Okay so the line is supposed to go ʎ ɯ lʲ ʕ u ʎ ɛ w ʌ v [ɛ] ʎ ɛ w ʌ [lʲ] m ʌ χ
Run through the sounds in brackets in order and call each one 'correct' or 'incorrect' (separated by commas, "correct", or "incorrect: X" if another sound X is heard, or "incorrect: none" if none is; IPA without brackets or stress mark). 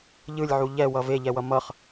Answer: incorrect: e, incorrect: none